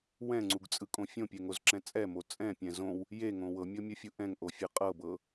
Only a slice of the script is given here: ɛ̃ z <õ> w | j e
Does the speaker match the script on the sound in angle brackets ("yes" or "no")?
yes